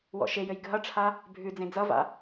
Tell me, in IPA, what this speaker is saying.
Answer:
w ɔ̰ ʃ e j ɘ j ɡʱ ʌ ʈ͡ʂʰ a | bʱ ʉ d͡z ẽ d͡z ʌ v a̰

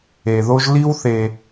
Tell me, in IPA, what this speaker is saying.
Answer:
e˩ ð o˦ ʒ l i˦ w θ e˨

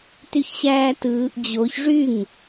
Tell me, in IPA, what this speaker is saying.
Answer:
t y ç ɕ æː t ɯː ʔ d͡ʑ o ç ʐ y ŋ

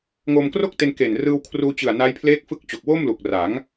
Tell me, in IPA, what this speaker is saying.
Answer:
ŋ o˧ m k r o˥˩ k̚ t e˧ n k e˨˩ n r ɯː˧ w kʰ r uː˧ t͡ɕ ɯ˨˩ a̯ n a˦˥ j pʰ l eː˦˥ k̚ f ɯ˦˥ k̚ t͡ɕ o˨˩ k̚ w o˥˩ m l u˨˩ k̚ r a˩˦ ŋ

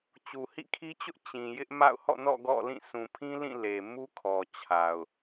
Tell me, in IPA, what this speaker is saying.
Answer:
t͡ɕ u˨ h ḭ˦˨ kʰ i˦ t͡ɕ ʊ˦ ʔ t͡ɕ ĩ˨ j ɪ˦ ʔ m a̰˦˨ ʊ̯ h ɔ̰˦˨ n ɔ̰˦˨ ɡ ɔ̰˦˨ l ĩ˦˨ sʰ ũ˨ pʰ ĩ˦ l ĩ˦˨ l e˨ m u˦ kʰ ɔ˨ t͡ɕʰ a˨ ʊ̯

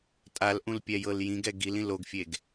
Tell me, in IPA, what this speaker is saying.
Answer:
tʼ a l ʔ ũ l pʲ ɛ j ɤ l j ĩ ɡ ɛ ɡ i l ĩ l o ɡ fʲ e ɡ

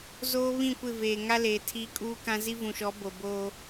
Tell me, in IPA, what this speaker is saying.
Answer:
z oː˦ β ĩ˦˨ kʷ ɪ˦˨ v eː˨ ŋ a˦ l eː˨ tʰ iː˦ kʼ uː˦ k ã˦ z i˦ v ũ˨ ʃ ɔ˨˦ b o˨ b oː˦

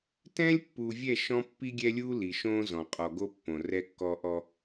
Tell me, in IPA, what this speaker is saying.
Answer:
t ɛ̃ː˦ lʲ pː uː˨ vʲ ɛ˦˨ ʃ ɔ̃˦ pː i˦ ɡʲ ɛ˦ lʲ uː˦ l i˨ ʃ õː˦ z ɔ̃˨ qʼ ɔ˨ ɡ o˦ pː õ˨ r ɛ˦ kː ɔ˦ ʔ ɔ˦

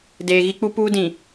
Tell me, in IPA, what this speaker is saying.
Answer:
d eː˨ ɣ i˦ k͡p u˦ p uː˦ d ĩ˨

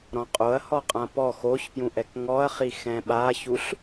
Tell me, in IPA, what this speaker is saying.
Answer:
ɾ ɔ̃ qʼ o ɐ̯ h ɔ qʼ ã p ɔ x o ç p j ũ ʔ ɛ k ŋ ɔ ɐ̯ χ i x ɛ̃ ɓ a ç u ɬ

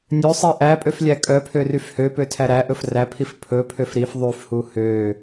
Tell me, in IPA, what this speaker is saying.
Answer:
nʲ ø sˤ i ʔ æ pʼ ø f lʲ æ kʼ œ pʰ ø r y f h ø p ø tʰ æ ɾ æ ʔ ɵ f r æ pʰ i f pʰ ɵ pʰ ø f ɾ i f ðˤ y f h u h ø

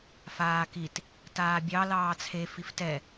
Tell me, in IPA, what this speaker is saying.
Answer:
f aː k i t | t aː bʲ ɑ l ɑː t͡sʰ e f i f t ɛ

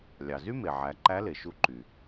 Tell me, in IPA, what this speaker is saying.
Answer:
lʲ ɑ˩ z y˥ m e˩ ʕ æ˩˧ ǃ æ˧˥ l e˩ ʃ u˧ ǃ y˩

